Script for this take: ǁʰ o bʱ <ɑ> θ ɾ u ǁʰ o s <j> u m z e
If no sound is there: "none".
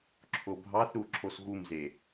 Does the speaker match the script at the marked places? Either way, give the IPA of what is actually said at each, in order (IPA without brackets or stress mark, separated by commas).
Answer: ɑ, ɣ